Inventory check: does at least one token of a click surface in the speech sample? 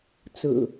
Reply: no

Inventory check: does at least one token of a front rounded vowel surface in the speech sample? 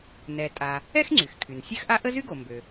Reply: yes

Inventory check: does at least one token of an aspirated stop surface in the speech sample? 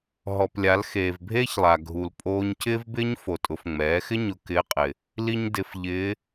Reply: no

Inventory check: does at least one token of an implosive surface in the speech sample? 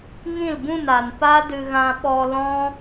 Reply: yes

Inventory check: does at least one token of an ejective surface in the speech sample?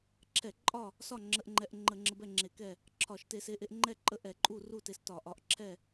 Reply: yes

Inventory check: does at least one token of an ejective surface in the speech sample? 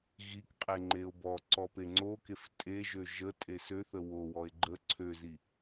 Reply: yes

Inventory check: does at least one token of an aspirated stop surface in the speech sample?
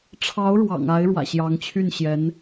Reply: yes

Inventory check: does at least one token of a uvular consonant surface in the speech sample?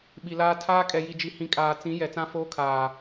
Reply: no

